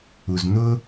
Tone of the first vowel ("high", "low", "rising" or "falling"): low